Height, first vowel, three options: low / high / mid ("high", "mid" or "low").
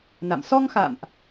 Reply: low